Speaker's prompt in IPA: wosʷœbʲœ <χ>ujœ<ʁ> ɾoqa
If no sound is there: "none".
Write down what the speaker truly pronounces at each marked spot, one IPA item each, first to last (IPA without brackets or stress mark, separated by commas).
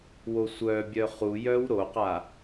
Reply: χ, w